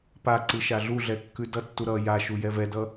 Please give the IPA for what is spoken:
pa ǀɨʃaɮuɮɛ kːʉdʌtːu ɾʌ jaʃu jɛvɛdʌ

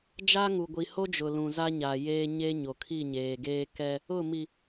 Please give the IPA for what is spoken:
d͡ʒa˦ŋu˨ɡʷi˨ ho˦d͡ʒʊ˨lũ˨ za˦ɲa˨jeː˦ ɲe˦ɲo˨ kʰi˦˨ɲeː˨ɡeː˦ kɛ˦ | ʊ˦˨mi˨

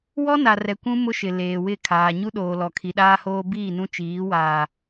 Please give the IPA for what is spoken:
wɔ˦na˨ rɛ˨kʷũ˦ mʊ˦ʃɪ˨ leː˨wɪ˦˨ kʰaː˨ɲu˦ɗoː˨ lɔ˨kʰi˨ɗaː˦hoː˦ biː˦˨nũ˦t͡ʃiː˨˦waː˨

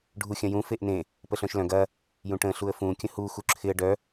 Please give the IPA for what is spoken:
ɖʱuxʲɐ̃jũ feʔnẽ | pəɬœ̃ʃlœ̃ɡ ɐ | jũʈə̃ ɬuə̯fũ kʲə̃hu xuǁʰɪə̯ ɖœ

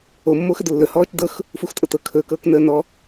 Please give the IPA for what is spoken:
omːox ədlːɵ hɔːt͡ʃdɤx | fuxtʼɤtɤ kʰɵkɤːk nəːnɔ

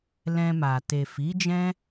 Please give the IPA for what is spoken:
lɛ̃˧ma˨ te˨fi˨˦d͡ʒɛ̃˦

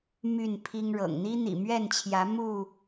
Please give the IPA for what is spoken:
my˥˨npʰi˦ŋɻɤ̰˨˩ŋ n̪i˦n̪ḭ˨˩mɥɛ˥˨nt͡ɕʰjä˨˦ mu˥˨

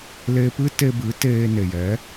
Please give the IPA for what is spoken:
leː˧pɨ˦te˧bɨ˨˦ teː˧ne˨jɛ˨˦

